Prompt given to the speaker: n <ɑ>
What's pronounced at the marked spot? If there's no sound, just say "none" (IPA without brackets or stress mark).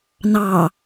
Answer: ɑ